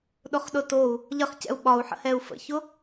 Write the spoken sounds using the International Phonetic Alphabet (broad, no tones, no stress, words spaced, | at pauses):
ɗʊχɗʊtou̯ | ʎəχcɛ̰u̯ ɓɒu̯ħə̰ hɛu̯fə̰çʊ